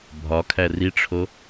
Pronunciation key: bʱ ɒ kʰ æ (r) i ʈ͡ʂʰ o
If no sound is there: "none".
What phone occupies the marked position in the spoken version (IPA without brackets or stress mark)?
r